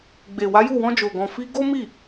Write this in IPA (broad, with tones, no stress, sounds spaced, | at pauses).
ɡ͡b e˨ w a˨˦ j u˦˨ w ɔ̃˧ d͡ʒ o˨ ɡ ɔ̃˨ f i˧ ɡ o˦ m i˦˨